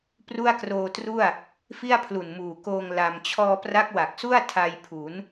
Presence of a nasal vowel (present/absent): absent